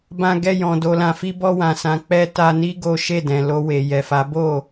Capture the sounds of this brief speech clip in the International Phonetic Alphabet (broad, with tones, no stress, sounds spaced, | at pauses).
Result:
b ã˧ ɡ ɛ˧ j ɔ̃˨ d o˧ l ã˧ f i˦ b ɔ˧ w ã˨ s ã˨ k͡p ɛ˧ t a˧ n i˦ ɡ o˦ ʃ e˦˨ d ɛ̃˨ l o˧ w e˨ j ɛ˨ f a˨˦ b o˦˨